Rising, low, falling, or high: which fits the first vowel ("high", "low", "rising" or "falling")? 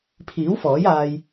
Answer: rising